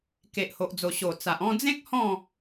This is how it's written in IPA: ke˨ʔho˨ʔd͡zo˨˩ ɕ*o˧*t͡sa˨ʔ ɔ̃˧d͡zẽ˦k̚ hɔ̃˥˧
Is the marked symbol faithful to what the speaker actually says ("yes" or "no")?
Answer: no